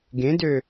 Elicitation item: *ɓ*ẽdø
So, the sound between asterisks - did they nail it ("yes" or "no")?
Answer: no